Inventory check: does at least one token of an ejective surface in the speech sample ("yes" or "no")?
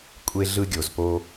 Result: yes